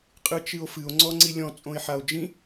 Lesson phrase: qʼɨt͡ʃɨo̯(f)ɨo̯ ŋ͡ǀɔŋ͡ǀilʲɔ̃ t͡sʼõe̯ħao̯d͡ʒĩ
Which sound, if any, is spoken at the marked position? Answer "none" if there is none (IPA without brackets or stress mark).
f